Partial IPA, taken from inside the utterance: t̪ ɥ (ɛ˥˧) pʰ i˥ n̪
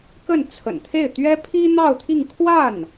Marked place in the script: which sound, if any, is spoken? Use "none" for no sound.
ɛ˥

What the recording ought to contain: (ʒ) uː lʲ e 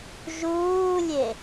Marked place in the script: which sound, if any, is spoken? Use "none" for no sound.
ʒ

